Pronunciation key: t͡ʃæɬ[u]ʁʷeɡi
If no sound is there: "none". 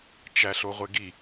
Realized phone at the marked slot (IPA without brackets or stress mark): o